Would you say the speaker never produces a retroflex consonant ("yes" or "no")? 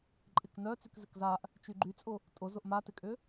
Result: yes